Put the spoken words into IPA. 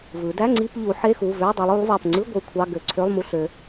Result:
vɯ˩˧dæ˧˥˧ŋ͡ǀi˧˥˧p ʎu˩˧ ħe˧˥˧xu˩˧˩vø˧˥˧dˤu˩˧lˠ y˩˧lˠvɑ˩˧˩pŋ͡ǀɯ˧˥˧ ɡʷɯ˧˥˧kʷʰɑ˧˥˧ ɡø˩˧˩ ǀʰø˧˥˧lˠmu˧˥˧ɬ ø˩˧

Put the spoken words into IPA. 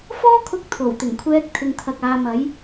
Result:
fɔː˥kʰʊ˧k̚ t̪ʰo˨˩wt̪ɪ˨˩ŋkʷʰɛː˧k̚ t̪ʰɪ˨ŋt̪ʰɐ˨k̚ aː˨˧mɐ˨˥j

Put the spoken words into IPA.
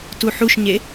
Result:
tuħuʃɲe

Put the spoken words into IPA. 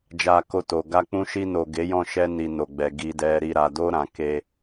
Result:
d͡ʒa˧ko˧to˨ ɡa˧ k͡pũ˧ʃi˧no˨ ɡe˨˦jɔ̃˦˨ ʃɛ˧ni˨ no˨ɡ͡bɛ˨ ɡi˨dɛ˨ ɾi˨ɾa˨do˧ ɾã˨ ke˧

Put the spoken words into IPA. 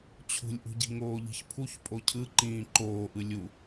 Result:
t͡ɕʰṳlʲʔṳɟi̤ ŋoːʎi̤çpʰuç pʼocʰɯ ǃĩːǃoːʔɯ lʲu

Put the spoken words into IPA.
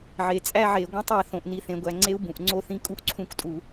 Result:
ʕe˩˧ t͡sʼæ˥˧ʕe˧˩˧ ɡʷẽ˦˥tˤ æ˩˧ θõ˩˧ʔ ni˧˩˧θẽ˩˧ɡʷæ˩˧ ŋ͡ǀe˦˥u̯ bũ˩˧ʔŋ͡ǀo˥˧θĩ˦˥ kʼu˥˧ʔǀʰũ˦˥ktʼu˧˩˧

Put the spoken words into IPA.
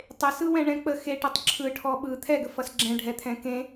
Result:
tˤesɯwɛ̃ɳɛ̃ k͡pə xeʈʌtˤ ǁʰɯʈʰɔ ɓɯ t̪ʰɛɡəfʌs ɡ͡ǁɛ̃ɖʱɛt̪ʰɛ̃ kẽ

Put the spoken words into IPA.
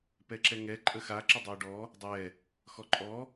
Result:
pɛǁɛŋɛ ǃʼəxa ǁədˤɜɖɔ | dˤɛ | xɔǃʼɔ

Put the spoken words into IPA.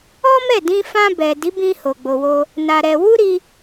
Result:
ɔ˦mɛ˦˨ dĩ˧fã˧ bɛ˨di˨˦bĩ˧ ho˨ɡ͡bo˨wo˧ | na˧ɾɛ˧ wu˦ɾi˧

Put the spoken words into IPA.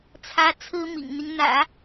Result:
t͡sʰä˥ t͡sʰɹ̩˥mḭ˨˩ŋn̪i˦ŋ n̪ä̰˨˩˦

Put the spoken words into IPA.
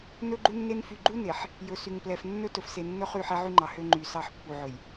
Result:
nɵ˦ɡ͡ǃu˦nːe˦n fy˨ɡ͡ǃu˦ne˨ħ | jɵ˨sy˨ŋplɛ˨f nːɵ˦ tɵ˨fse˨nːɵ˦ χy˦˨ħɛ˦ʕy˦ŋ͡ǃɑ˨ hø˦ŋ͡ǃy˨ sɑ˦˨ħpːu˨ʕɵ˨j

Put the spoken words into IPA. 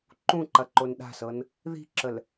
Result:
ǃũǃɐ ǃonɗa̤sɤn | ði̤ǁəl

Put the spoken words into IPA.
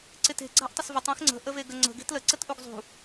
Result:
ǀɪte̤ ɡ͡ǀa̤ʔtˤəsvətˤ ẽxŋ͡ǀə̤ ʔəveɡəŋ͡ǀə̤ ɡe̤tlə ǀətʔuɡzˤṳ

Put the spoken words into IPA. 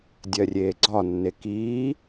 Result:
dʲɜrʲeːɡ͡ǀɒnːe kiː

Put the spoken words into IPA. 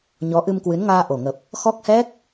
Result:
ɲɔ˨˦ʔɨ˧mkwɨ˨˦nŋaː˧ ʔo˨˩ŋə˨˩p̚ | xɔ˦˥k̚hɛ˦˥k̚

